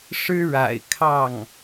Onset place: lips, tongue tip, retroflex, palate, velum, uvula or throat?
retroflex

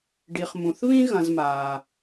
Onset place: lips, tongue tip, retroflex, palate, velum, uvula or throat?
retroflex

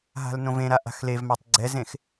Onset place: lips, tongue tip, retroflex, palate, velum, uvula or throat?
throat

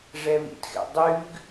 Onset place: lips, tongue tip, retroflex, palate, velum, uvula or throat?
retroflex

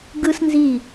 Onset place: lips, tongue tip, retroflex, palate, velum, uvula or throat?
velum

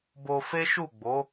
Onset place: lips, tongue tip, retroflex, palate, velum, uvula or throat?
lips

